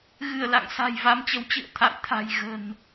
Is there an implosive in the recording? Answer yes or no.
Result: no